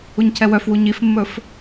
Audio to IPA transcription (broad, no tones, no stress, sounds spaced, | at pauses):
u ɲ cʰ ɛ w œ f w u ɲ i f mː ɵ f